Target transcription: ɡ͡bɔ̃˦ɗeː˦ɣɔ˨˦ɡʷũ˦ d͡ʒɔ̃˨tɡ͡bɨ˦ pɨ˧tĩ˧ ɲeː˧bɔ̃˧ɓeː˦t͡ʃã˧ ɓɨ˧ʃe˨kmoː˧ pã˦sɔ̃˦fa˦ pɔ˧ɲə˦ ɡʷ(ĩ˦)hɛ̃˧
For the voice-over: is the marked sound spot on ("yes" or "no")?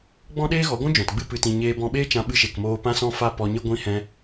no